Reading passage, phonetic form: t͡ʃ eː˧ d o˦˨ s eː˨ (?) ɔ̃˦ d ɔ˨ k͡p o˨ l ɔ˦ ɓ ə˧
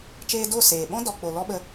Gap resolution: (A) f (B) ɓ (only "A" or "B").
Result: B